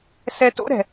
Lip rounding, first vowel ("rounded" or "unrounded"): unrounded